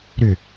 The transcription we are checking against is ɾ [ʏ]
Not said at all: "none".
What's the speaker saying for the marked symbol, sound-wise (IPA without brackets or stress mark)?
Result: ʏ